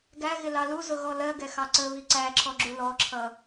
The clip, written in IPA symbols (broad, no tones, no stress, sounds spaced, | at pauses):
ɡ æ ɣ ɪ l ɑ l u z ʊ ɣ ɔ l ɜ ɡ ɛ x ɑ ǀ ə β i ǀ æ ǁʰ ɔ ɡ͡ǁ u l ɔ ǁʰ ʌ